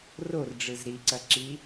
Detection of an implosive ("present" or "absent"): absent